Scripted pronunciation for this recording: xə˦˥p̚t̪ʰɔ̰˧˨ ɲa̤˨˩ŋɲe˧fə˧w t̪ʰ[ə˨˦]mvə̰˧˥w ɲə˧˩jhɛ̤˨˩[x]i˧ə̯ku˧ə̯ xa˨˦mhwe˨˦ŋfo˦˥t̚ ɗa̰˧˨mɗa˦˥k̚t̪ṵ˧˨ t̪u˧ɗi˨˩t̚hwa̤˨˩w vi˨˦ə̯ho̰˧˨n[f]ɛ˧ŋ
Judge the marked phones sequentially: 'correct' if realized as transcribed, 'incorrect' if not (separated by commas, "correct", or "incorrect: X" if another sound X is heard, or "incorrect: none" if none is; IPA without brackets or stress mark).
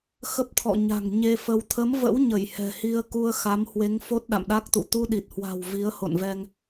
correct, incorrect: h, incorrect: v